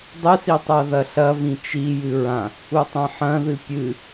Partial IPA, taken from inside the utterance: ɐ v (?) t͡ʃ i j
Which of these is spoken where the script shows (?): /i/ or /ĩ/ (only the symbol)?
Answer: ĩ